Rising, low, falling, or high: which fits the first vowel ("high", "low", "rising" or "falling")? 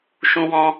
high